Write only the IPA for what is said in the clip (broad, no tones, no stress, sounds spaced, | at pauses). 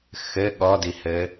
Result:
x ɘ ɠ ɔ d i h ɘ